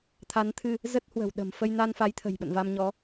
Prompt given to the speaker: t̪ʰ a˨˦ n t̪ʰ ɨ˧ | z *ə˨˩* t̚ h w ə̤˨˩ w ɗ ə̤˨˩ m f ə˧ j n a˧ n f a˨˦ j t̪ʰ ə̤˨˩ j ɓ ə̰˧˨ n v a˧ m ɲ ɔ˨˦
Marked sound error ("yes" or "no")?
yes